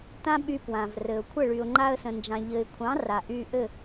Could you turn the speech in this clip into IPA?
t ã˦ ɓ y˧ p w ã˨ v r ɘ˨ ʊ̯ kʷʰ ə˦˨ ɭ y˨ ʊ̯ ŋ͡ǃ a˧ ə̯ s ə̃˨ n d͡ʒ ɑ̃˨ ʎ ɘ˨ ɪ̯ kʷʰ ɑ̃˨˦ r a˨ ʔ y˧ ʔ ɘ˦˨

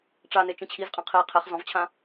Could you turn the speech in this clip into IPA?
ʈ͡ʂ a n e t͡ʃ ĩ t͡ɕʰ i z qʼ ẽ qʰ i qʰ e χ z ɔ̃ v t͡ɕʰ ã

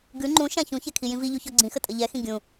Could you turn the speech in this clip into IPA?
ɡ ʉ ŋ͡ǃ ũ ʃ ã ç ũ ç ɛ kʰ i j ĩ v i ʎ u ç ɔ ɡ͡ǀ ĩ x ə tʼ ə ʎ ɛ x ĩ ɡʲ ũ

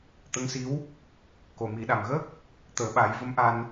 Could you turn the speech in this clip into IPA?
t̪ ə˧˥ ŋ s i˧˥ w | k o˨˩ m i˨˩˦ ɗ a˨˩ m ɣ əː˦˥ k̚ | t̪ əː˨˩˦ ɓ a˨˩˦ j v ə˧˥ m ʔ a˧ n

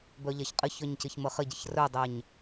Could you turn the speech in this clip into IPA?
b œ ʎ a ç qʼ ɪ ç œ ɲ c ɪ ç m ə χ ɪ ɟ ə ç r œ dˤ ɛ ɲ

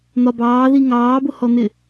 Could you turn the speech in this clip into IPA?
n̪ ɒ b ɑː ð i ŋ ɑː b ʊ h ɔ n̪ ɪ

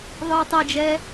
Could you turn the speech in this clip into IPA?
ðˤ ɯː tˤ ɤ d͡ʒ ɛː

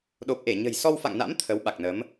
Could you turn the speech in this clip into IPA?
ɗ o˨˩ p̚ ʔ e˧˩ ɲ ə̤˨˩ j s ɔ˧ w f a̰˧˨ ŋ n a̰˧˥ m t̪ʰ ə˨˦ w ɓ a˨˩ k̚ n ə˨˦ m

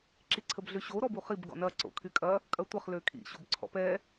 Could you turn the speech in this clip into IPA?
ǁ i ǀʰ ə b ɮ ø ɕ o ɾ ɔ b u χ i b ɡ ɔ̰ n ɐ ǀ o̰ kʰ y kʼ ɐ | kʼ ɐ tʷ ɐ χ l ø kʰ ḭ ɕ o b ǀʰ ɔ̰ p ɛː

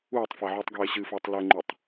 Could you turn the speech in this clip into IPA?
uː tˤ f a ʕ uː tˤ ɡ eː ɕ ɨ f ɘː tˤ l ɛ ŋ͡ǃ u tˤ

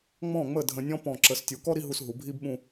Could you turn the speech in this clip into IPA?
ŋ͡m ɔ̃˧˩ ŋ͡m ə˧˩ dʱ ə̃˧ nʲ ɔ̃˥ p ɔ̃˧˩ ǁ ə˩˧ s tʲ u˩˧ k ɔ˥ ɾ i˥ ɦ u˧ s ɦ u˩˧ bʱ i˥ b ɓ ũ˥˧

